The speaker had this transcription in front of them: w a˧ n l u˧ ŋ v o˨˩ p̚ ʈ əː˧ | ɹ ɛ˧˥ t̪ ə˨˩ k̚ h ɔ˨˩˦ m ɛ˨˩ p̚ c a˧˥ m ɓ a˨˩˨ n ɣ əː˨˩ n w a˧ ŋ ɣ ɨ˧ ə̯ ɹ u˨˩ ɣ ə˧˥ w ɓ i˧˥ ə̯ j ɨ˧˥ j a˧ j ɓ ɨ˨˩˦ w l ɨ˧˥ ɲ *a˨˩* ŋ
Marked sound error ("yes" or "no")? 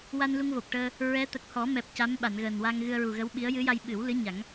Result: yes